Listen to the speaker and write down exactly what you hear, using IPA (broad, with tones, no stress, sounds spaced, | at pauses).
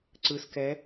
ǀ ɯ˨ s k ɛ˨˦